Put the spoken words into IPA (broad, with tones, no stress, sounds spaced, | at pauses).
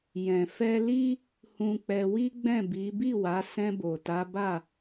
j ɛ̃˨ f ɛ˧ l i˦ | h ũ˧ k͡p ɛ˧ w i˦ ɡ͡b ɛ̃˦˨ b i˨˦ b i˦˨ w a˨˦ s ɛ̃˧ b o˨ t a˨˦ b a˦˨